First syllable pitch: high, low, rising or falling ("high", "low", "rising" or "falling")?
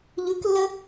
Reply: rising